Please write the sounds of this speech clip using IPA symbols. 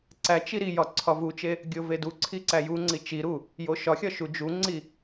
ǀ æ t͡ʃ i ɾ i j ɒ ǀʰ ɒ v u t͡ʃ e | ɡʲ o v e d u ǀʰ i ǀ æ j u ŋ͡ǀ i t͡ʃ i ɾ u | j o ʃ ɒ xʲ ɒ ʃ u d͡ʒ u ŋ͡ǀ i

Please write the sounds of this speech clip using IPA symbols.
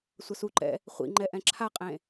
sʷ ʌ s u ǃ ɛ̰ | χʷ ḭ ŋ͡ǃ ɛ ʔ ɛ̃ ǁʰ a qʼ ẽ

